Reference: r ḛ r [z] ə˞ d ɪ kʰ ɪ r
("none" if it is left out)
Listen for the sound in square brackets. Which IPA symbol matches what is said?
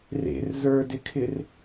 z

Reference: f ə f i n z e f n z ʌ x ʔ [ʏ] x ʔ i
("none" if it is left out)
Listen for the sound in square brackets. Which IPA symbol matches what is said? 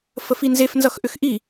ʏ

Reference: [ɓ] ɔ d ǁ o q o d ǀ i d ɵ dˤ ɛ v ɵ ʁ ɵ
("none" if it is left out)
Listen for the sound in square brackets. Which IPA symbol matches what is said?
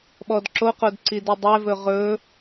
ɓ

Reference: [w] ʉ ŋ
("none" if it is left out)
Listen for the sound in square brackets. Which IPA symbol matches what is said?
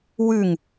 w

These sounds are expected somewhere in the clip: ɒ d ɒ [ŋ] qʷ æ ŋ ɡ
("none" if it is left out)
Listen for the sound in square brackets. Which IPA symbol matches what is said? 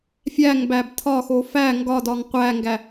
ŋ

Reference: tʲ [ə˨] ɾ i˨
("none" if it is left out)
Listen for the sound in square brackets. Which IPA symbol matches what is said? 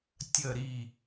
ə˨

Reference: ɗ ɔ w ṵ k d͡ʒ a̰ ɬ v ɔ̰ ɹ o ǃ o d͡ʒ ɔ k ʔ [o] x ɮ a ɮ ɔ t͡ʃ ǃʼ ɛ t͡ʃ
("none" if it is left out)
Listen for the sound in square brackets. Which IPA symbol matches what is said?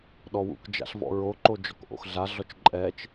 o̰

